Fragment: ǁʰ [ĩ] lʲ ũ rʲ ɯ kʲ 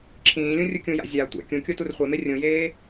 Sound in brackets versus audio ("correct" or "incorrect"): incorrect